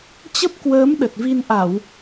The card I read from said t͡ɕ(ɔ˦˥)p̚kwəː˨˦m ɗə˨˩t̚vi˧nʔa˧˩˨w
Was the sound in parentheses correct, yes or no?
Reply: no